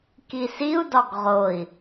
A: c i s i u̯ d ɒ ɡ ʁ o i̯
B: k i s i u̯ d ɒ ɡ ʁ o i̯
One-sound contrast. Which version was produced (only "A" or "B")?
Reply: B